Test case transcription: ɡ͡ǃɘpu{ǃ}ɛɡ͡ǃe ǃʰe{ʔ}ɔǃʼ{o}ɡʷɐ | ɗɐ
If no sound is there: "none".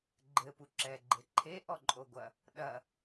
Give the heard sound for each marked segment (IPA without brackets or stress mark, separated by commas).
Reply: ǁ, ʔ, o